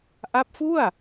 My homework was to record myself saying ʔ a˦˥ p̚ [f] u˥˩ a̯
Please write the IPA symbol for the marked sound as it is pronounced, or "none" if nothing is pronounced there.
f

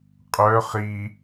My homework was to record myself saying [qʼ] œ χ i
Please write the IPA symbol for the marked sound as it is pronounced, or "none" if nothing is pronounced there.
qʼ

